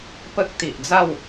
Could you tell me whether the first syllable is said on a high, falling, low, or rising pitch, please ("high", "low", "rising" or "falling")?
high